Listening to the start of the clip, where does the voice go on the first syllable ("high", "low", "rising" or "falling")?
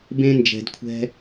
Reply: high